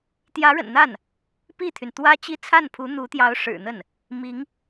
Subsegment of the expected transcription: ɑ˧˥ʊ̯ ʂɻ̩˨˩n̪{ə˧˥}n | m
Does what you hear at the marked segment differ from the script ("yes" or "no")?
yes